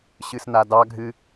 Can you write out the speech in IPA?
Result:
ɕ ɨ s n a d ɑ ɡʱ ɨ

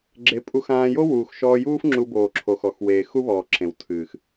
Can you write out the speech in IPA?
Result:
ɡ͡ǁ e˨˦ pʼ u˧ x ãː˧ j o˦ w uː˨ x ʃ ɔː˧ j uː˦ f ŋ͡ǁ u˧ b oː˨ ǁʰ o˨ x ɔ˨ x w eː˨ x u˦ β ɔː˨ ǁ ẽ˨ w tʰ ɨː˨ x

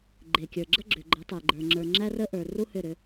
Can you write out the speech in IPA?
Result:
ɡ͡ǃ e˨ kʲ ə˞˨ ɡ͡ǁ ə˦ ɡ͡ǁ ʏ˨ ɡ͡ǃ ə˨˦ tˤ e˨ ɡ͡ǃ ə˞˨ ŋ͡ǁ ə˞˨ ŋ͡ǁ æ˦ r ə˦ ʔ ə˞˨ r u˦ h ʏ˦˨ ɾ ʏ˦

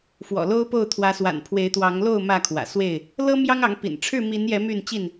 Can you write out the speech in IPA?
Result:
f w ɔ̰˨˩ l o˦ ʊ̯ p o˥˨ ʊ̯ t̪ʰ w ä˨˦ s w a̰˨˩ n pʰ w e˨˦ ɪ̯ t̪ w ɑ˨˦ ŋ l o˥˨ ʊ̯ m ä˥˨ kʰ w ä̰˨˩ s w e˥˨ ɪ̯ | l ɤ˦ m j ɑ˦ ŋ ɑ˨˦ ŋ p ḭ˨˩ n ʈ͡ʂʰ ɻ̩˥˨ m i˨˦ n j ɛ˨˦ m y˥˨ n t͡ɕ i˥˨ n

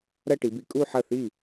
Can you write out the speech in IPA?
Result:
ɾ ɐ˥˧ ʈ i˩˧ b i˩˧ kʼ u˥˧ ħ ɐ˥˩ θ i˥˩

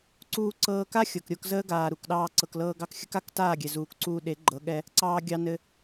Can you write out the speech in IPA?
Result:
ǀ uː˧ ǀ ɤː˧ k a˦ xʲ ɤ˨ k ɾʲ o˧ k z əː˦ ɡ aː˨ ɾ u˨ k ɗ ɑː˧ ǀ ɤ˨ k l ɤː˧ ɡ ɑ˧ k xʲ ə˦ k a˨˦ k t aː˦˨ ɡʲ ɛ˨ z uː˨ k ǀ uː˧ ɗ e˨˦ ɡ͡ǃ ɤ˨˦ ɠ ɛ˧ | ǀ ɑː˧ ɡʲ ɑ˧ n ɘ˧

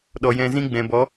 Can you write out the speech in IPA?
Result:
ɗ ɔ˨ j ɛ̃˧ z ĩ˦ ɡ͡b ɛ̃˨ b ɔ˨˦

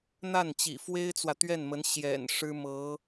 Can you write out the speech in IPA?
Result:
n̪ a˥˩ n t͡ɕ ḭ˨˩ f w e˥ ɪ̯ t͡s w ä˨ t̪ ɥ ɛ˥˩ n m ə˧˥ n ɕ j ɛ̰˨˩ n ʂ ɻ̩˥ m ɤ˧˥

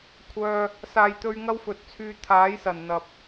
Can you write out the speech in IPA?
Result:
kʷʰ œː˧ | s aː˨ j t̪ ɵ˧ ɥ ŋ ɐ˥ w f ɵ˨˥ t̚ t͡sʰ yː˧ t̪ʰ aː˨˥ j s ɐ˨˩ n n̪ ɐ˨ p̚

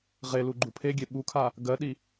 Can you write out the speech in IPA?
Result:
ʁ e l u ɡ͡ǃ u pʰ e ɡʲ e ɓ u kʰ a | ɡ ɜ ɗ i

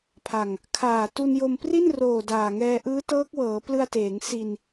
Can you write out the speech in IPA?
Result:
pʰ a˨˩ ŋ | kʰ aː˨˩ t u˧ n j o˧ m p r i˥˩ n r oː˨˩ d aː˨˩ ŋ ɛː˧ ʔ ɯː˦˥ t ɤː˦˥ k̚ w ɤː˩˦ p l ɯ˧ a̯ t eː˩˦ ŋ s i˧ n

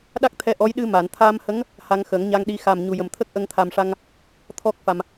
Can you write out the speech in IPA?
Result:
ɗ a˦˥ k̚ t̪ʰ ɛ˧˥ ʔ ɔ˧˥ j ɗ ɨ˧ m a˨˩˨ n t̪ʰ a˧ m h ə˧˥ ŋ | h a˧ ŋ x ə˨˩˦ ŋ ɲ a˧ ŋ ɗ i˧˥ x a˨˩ m ɲ u˨˩ j ə˨˩ m t̪ʰ ə˦˥ k̚ ʔ ə˧ ŋ t̪ʰ a˨˩ m ʂ a˧ ŋ | t̪ʰ ɔ˦˥ k̚ f a˨˩ m

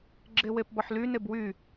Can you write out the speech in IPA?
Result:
ɡ͡ǁ e w e p b ɔ ħ l y n e b w y

